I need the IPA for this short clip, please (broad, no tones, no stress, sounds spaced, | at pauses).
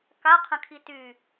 k a qʰ ə̃ kʰ i t y